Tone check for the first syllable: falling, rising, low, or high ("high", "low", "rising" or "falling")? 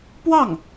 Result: falling